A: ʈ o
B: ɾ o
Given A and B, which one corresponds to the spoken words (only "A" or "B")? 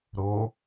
B